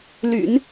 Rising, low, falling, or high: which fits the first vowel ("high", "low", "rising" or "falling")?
low